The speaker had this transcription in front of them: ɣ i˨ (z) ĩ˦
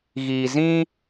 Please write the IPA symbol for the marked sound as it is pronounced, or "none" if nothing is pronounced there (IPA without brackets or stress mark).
z